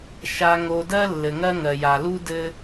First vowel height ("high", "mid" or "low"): low